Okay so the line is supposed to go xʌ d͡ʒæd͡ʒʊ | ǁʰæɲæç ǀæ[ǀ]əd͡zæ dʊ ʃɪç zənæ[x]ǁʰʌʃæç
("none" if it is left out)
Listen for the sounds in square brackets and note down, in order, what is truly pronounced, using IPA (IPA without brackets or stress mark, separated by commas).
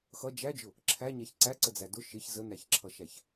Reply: ǀ, ç